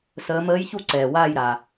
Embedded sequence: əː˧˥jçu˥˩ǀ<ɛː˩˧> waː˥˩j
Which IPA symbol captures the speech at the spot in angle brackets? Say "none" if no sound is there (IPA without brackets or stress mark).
ɛː˩